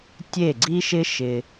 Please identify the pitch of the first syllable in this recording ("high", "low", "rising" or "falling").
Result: falling